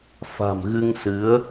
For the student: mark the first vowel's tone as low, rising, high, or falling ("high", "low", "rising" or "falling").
low